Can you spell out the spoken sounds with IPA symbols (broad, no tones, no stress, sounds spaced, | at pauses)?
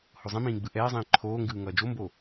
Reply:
h o zˤ ĩ m ĩː ɡ͡b ɯ ʔ ɛː zˤ ĩː ǃʰ oː ŋ ɡ ɯː ŋ ʌː d͡ʒ o m b o